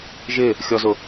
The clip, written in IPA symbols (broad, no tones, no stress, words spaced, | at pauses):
ʒɪ | xʲɔzʊ